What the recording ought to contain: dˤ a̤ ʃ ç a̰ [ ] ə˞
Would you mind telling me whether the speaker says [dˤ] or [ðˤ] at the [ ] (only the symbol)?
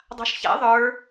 ðˤ